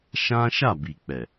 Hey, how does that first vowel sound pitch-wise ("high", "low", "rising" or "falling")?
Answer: high